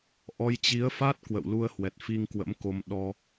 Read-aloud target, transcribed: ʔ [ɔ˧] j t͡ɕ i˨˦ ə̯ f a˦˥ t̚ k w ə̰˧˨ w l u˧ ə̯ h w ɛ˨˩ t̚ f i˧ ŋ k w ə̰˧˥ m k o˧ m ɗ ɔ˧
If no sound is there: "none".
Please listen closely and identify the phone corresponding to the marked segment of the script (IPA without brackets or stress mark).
ɔ˧